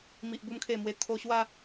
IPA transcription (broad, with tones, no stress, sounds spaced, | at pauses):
m i˨ ʔ b u˧ m kʰ e˨˩ m w e˨˩ t̪ʰ o˧ ɕ w a˥˧